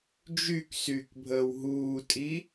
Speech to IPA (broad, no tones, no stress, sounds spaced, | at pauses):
d͡ʒ y k s yː k bʱ əː w ɦ uː tʼ i